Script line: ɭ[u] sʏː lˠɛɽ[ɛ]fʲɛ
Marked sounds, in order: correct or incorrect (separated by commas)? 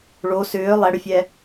incorrect, incorrect